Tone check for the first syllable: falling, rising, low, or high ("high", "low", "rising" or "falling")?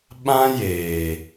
high